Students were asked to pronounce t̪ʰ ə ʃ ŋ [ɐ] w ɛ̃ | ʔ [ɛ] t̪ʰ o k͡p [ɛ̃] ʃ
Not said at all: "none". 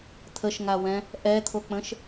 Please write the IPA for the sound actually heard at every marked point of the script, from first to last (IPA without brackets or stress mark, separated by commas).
a, ɛ, ə̃